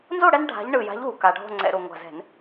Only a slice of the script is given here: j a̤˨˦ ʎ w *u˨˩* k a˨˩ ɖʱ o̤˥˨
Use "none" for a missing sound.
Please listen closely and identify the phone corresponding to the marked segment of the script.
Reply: u˨˩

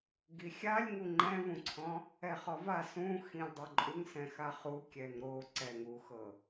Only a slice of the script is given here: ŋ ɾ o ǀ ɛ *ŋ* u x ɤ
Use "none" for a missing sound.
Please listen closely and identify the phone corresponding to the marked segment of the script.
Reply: ŋ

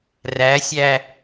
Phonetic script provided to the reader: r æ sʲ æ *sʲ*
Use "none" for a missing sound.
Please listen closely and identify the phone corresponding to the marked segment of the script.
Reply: none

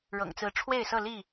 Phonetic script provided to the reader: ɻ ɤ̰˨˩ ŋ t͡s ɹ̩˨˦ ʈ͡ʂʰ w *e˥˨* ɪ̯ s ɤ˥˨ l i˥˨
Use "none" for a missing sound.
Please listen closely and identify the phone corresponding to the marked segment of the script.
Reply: e˥˨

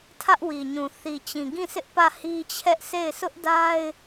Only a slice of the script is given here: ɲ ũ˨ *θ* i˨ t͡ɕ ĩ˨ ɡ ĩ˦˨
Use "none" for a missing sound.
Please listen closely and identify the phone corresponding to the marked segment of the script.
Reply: θ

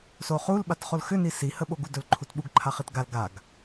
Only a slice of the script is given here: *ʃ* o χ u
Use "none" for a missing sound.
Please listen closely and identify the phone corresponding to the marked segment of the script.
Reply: s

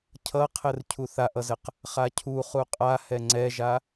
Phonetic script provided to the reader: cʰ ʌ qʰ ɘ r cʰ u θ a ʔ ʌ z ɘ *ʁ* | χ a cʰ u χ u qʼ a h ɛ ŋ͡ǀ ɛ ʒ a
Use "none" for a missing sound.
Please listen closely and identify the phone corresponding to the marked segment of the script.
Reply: q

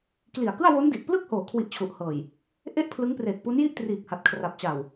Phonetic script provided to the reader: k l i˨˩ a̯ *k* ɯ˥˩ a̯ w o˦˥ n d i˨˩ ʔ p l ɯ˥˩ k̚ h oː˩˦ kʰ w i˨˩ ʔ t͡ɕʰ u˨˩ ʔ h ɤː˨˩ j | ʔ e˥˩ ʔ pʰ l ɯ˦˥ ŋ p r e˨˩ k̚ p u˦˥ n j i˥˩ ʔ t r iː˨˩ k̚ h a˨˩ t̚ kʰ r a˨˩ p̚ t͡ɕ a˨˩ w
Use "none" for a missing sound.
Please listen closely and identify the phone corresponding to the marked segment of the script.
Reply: k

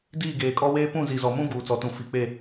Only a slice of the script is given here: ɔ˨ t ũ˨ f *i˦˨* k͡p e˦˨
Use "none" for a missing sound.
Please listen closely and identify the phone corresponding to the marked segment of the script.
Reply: i˨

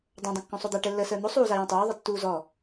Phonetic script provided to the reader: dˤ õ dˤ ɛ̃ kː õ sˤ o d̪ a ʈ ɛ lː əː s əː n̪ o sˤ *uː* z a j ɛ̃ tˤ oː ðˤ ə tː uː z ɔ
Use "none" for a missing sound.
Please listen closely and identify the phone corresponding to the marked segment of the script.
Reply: uː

